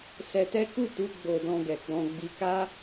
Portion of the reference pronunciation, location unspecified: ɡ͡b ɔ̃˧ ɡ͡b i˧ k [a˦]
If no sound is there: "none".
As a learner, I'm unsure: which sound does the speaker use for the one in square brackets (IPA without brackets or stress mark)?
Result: a˦